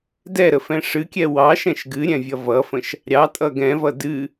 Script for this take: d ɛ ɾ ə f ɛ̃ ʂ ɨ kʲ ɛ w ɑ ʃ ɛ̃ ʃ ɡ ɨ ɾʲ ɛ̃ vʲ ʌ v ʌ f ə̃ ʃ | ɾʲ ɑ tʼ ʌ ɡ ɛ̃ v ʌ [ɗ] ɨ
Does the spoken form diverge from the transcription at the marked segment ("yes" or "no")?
yes